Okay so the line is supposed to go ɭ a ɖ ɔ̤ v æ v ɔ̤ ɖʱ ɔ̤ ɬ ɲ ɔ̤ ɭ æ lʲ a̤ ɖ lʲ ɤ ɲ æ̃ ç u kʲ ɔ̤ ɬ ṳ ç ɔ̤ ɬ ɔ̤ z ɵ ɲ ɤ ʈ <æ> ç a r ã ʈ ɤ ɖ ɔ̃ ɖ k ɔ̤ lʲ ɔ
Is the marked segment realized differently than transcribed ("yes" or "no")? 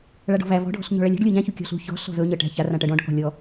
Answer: yes